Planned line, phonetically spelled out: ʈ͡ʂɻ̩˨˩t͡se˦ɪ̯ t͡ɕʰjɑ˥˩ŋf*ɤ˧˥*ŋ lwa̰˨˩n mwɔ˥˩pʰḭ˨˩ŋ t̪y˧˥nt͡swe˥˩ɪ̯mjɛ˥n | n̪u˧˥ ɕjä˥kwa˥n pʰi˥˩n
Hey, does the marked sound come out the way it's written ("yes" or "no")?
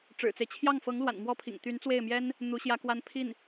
yes